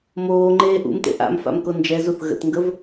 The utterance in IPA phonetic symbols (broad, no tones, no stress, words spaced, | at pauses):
moːŋ͡ǃeː ʔṵmtḛ ʔa̰mfa̰mko nd͡ʒɛzuθ ɣə̰tŋɡəv